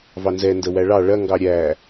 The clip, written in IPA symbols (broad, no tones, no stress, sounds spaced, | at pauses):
v ɑ n z ɛ n d ə w æ ɭ ɑ ɭ ɐ ŋ ɡ ɑ ɾʲ æ